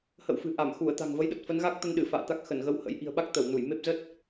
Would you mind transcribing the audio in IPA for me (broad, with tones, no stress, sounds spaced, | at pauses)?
h ə̰˧˨ w f ɨ̤˨˩ ʔ a˧˩ m x u˧˩ ə̯ t̪ a̤˨˩ ŋ v ə˨˦ j ɗ ə˨˩ t̚ f ə˨˦ n ɣ a˦˥ k̚ t̪ ə˧ n ɗ ɨ˧˩ f a̰ː˧˨ t̪ a˦˥ k̚ x ə˧˩ n ɣ ə˧ w h ə̰˧˥ j ʔ i̤˨˩ ə̯ ɓ a˦˥ k̚ t̪ ə˧˩ w n u˧˩ j m e˦˥ p̚ z ə˦˥ t̚